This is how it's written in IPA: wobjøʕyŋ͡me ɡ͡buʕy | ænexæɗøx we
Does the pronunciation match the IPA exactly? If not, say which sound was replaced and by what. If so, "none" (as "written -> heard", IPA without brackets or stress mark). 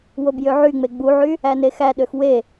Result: none